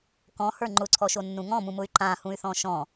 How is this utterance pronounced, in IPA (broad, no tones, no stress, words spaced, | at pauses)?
kɔ̃hə˞ ŋ͡ǃʊǀʰɔʃonːũ ŋɔ̃mũmʊy̯ ǃãhũy̯θɔ̃ ʃɔ̃